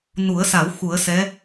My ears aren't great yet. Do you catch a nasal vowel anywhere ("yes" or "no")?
no